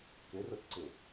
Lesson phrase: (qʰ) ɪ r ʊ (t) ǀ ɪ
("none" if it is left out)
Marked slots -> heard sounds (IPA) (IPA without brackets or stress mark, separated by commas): k, t